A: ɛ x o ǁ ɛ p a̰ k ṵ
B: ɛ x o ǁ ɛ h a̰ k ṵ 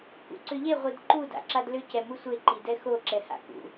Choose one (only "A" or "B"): B